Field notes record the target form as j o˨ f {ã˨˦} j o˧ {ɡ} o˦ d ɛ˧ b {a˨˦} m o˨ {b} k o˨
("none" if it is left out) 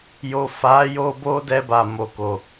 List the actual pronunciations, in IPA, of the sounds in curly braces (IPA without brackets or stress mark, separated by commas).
a˨˦, b, a˨, none